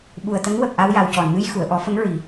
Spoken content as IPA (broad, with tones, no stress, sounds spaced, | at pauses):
ɓ u˨˩ ə̯ t̪ ə˧˥ ŋ w ə˨˩ k̚ ʔ a˧ w j a˨˩ w c ɔ˨˩˨ n m ɨ˧ j x u˨˩˨ ə̯ ʔ ɔ˨˩˦ f ə˧˥ ŋ ɹ i˨˩˦